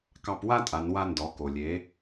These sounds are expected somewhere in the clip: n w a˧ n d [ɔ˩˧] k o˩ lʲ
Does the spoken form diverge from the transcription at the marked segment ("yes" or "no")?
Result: no